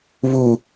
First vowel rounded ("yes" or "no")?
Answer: yes